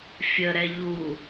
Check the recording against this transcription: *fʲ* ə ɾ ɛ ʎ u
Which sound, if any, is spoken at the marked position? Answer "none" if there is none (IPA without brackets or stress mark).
fʲ